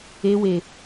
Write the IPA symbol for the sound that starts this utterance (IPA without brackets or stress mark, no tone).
e